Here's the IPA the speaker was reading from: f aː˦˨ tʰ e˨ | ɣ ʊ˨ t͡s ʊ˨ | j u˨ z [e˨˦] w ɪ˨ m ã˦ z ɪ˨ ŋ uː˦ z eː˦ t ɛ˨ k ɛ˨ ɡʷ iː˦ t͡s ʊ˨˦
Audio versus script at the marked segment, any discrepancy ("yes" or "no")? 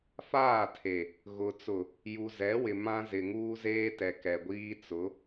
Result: yes